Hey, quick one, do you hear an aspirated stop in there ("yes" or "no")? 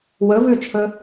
yes